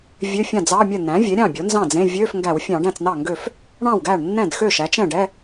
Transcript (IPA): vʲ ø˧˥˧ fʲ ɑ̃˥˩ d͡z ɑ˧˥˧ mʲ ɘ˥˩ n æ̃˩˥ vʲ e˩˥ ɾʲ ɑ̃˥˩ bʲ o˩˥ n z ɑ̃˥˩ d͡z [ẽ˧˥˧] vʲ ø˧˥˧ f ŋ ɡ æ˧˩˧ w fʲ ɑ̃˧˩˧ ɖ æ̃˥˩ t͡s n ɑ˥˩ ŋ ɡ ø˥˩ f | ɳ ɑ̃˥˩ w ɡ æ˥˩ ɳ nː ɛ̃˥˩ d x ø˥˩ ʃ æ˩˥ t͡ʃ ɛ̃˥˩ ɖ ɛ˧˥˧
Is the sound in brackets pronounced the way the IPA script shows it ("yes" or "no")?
yes